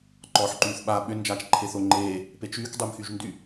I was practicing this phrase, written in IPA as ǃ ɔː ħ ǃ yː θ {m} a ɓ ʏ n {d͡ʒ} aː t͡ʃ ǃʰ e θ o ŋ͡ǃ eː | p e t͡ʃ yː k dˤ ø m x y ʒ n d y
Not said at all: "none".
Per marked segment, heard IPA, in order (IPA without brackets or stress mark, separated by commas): ɓ, d͡ʒ